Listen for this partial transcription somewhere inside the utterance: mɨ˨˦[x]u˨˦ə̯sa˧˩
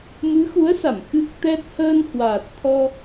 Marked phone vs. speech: correct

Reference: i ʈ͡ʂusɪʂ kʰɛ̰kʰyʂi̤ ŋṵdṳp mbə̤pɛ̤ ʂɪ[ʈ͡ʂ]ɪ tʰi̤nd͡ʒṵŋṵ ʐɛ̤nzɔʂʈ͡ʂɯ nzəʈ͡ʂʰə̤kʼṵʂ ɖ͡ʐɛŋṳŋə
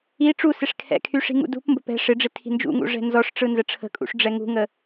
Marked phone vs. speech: incorrect: ɖ͡ʐ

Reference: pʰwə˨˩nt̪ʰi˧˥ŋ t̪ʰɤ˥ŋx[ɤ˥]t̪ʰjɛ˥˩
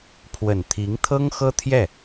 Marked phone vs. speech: correct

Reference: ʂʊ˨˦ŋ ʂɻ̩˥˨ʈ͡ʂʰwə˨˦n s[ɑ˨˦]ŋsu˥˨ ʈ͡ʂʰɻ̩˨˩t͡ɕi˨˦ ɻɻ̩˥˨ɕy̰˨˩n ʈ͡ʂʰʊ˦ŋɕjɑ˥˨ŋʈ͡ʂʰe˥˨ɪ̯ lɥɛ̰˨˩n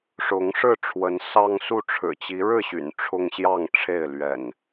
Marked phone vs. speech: incorrect: ɑ˦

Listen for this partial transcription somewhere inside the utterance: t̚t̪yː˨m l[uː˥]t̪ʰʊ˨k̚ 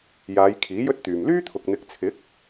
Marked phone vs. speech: incorrect: yː˥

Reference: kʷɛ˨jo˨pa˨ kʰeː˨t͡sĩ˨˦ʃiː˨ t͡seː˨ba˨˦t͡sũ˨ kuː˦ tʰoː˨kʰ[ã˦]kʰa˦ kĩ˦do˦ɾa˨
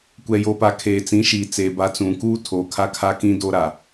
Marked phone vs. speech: incorrect: a˦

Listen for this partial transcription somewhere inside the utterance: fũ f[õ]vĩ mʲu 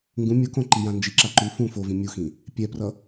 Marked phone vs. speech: incorrect: o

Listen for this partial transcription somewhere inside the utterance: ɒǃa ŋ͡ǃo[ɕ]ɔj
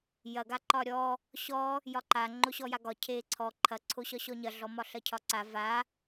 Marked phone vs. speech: correct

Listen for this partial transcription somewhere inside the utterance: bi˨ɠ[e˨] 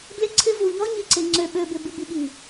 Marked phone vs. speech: incorrect: i˨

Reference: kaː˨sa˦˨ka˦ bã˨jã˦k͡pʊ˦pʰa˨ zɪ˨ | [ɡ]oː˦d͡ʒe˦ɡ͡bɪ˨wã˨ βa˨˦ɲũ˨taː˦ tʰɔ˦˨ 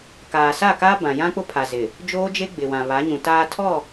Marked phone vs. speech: incorrect: d͡ʒ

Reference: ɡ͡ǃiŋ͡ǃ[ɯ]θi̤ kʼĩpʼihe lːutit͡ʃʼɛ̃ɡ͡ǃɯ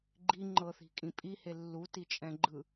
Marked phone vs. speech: incorrect: ɤ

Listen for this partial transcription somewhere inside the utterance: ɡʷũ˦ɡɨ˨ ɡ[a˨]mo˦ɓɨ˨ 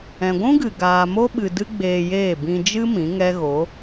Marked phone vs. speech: incorrect: aː˨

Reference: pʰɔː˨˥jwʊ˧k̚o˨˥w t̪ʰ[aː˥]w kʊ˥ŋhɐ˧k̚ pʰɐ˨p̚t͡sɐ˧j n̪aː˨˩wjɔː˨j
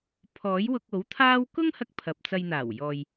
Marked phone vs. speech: correct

